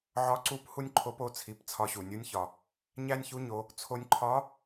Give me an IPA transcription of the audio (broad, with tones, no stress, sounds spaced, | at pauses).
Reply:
ʕ ɒ˧˥ ǀ u˧˥ p h u˥ nʲ ǃʰ o˧˥ p o˩˧ t͡sʰ i˩˧ p t͡sʰ ɒ˧ ɕ u˩ nʲ u˧˥ nʲ ç ɒ˩ | ɲ æ˥ nʲ ç u˧˥ ɲ o˩˧ | t͡sʰ o˧ nʲ ǃʰ ɒ˧˥